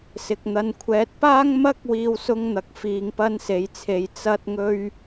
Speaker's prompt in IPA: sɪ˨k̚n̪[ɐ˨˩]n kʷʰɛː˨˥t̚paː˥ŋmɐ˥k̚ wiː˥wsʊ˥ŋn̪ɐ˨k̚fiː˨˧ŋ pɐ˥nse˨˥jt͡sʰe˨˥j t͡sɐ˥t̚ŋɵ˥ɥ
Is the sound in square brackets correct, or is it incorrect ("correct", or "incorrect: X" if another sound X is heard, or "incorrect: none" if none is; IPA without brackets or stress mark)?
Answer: incorrect: ɐ˧